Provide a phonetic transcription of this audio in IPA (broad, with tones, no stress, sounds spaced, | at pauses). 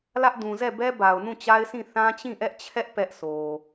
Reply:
l ä˦ ʔ d ũ˨ z ɛ˦˨ b ɛ˦ b a˨ ʊ̯ n ũ˦˨ t͡ɕ a˦ ɪ̯ s ĩ˦˨ θ ã˦ t͡ɕ ĩ˦˨ ʔ ɛ˦ ʔ t͡ɕʰ ɛ˦ ʔ p ɛ˦ ʔ s o˨